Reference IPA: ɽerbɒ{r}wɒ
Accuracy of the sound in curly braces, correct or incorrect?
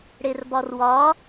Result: correct